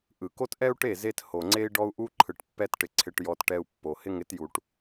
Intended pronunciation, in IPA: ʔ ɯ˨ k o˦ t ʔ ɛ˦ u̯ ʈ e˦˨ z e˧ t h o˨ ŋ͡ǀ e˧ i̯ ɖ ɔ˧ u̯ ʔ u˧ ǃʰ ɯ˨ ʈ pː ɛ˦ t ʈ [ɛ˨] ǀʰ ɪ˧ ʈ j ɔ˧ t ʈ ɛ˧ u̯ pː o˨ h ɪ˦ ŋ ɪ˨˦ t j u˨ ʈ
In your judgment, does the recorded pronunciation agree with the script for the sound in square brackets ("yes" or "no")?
no